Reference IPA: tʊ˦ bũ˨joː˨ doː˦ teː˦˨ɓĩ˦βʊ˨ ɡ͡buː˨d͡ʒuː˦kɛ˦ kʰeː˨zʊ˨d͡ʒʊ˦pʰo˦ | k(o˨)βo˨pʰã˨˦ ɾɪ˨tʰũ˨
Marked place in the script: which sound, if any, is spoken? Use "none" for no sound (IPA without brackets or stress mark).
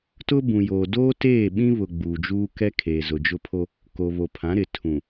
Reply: o˨